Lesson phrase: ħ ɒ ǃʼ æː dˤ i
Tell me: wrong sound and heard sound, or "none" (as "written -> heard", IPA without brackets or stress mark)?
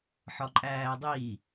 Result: none